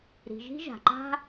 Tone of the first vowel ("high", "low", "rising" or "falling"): low